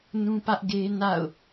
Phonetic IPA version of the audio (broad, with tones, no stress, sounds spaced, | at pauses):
n ũ˦ p ä˦ ʔ ɡ e˦ n a̰˦˨ ʊ̯